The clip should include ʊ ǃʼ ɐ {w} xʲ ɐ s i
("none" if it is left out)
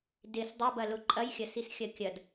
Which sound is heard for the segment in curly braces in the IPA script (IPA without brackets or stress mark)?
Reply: j